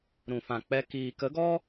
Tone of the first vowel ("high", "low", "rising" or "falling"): low